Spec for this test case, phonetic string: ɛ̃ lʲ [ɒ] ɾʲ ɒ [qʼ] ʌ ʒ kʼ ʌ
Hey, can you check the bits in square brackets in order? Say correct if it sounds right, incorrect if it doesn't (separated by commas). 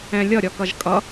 incorrect, incorrect